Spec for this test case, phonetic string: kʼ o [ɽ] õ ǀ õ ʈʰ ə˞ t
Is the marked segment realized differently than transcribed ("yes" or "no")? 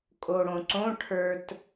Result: no